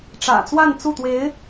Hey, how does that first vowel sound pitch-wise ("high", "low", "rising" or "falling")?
low